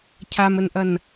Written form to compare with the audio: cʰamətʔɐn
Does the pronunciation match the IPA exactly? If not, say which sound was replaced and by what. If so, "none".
t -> n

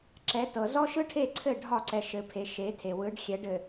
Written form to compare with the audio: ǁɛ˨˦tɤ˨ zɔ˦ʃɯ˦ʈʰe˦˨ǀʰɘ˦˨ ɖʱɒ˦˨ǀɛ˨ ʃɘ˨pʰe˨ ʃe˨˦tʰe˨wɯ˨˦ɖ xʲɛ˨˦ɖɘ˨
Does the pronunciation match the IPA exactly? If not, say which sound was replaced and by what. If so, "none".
none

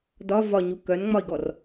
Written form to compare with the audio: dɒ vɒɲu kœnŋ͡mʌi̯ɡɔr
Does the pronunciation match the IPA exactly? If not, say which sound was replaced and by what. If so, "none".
ʌ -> ɒ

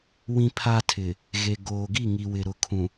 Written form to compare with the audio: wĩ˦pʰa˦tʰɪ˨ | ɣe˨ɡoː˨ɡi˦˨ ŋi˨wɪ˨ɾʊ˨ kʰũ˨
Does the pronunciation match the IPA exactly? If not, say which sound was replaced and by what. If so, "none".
none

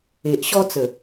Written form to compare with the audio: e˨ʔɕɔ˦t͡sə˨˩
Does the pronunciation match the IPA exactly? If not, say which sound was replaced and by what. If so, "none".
none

